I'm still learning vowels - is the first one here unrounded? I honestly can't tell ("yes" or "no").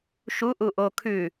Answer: no